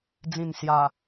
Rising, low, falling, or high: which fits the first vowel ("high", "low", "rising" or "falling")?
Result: low